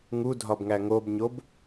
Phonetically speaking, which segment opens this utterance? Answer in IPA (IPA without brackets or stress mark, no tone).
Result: ŋ